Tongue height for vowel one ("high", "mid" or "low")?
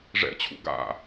mid